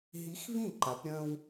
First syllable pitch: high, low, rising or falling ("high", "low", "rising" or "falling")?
rising